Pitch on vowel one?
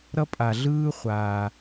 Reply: high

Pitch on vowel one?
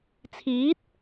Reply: rising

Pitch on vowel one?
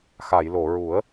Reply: low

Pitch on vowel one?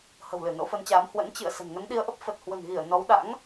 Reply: low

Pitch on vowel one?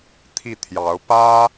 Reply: falling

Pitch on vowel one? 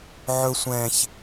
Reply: high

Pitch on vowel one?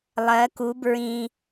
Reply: rising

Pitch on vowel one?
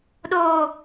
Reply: low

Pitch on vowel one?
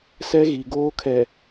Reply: high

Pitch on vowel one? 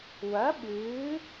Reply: rising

